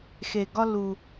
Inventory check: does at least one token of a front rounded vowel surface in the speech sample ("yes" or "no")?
no